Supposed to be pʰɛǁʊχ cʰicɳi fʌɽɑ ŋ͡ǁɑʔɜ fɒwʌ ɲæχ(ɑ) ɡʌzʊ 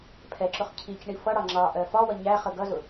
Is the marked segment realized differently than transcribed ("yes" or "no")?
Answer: yes